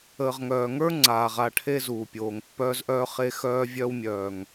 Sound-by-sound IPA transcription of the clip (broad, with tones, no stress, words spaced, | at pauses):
əː˨ʁŋœː˨ŋə˞˦ ŋ͡ǀaː˨ʁa˦˨ʈʰe˦ zuː˨pʲoː˨ŋpːœː˦zʔœː˦ χe˦xœː˦vʲœː˦wmʲœː˨ŋ